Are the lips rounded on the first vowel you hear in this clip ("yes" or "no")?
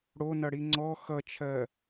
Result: yes